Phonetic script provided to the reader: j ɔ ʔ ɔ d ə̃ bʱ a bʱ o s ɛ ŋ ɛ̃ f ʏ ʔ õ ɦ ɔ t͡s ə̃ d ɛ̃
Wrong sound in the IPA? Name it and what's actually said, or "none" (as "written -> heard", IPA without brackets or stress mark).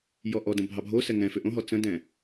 a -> ɑ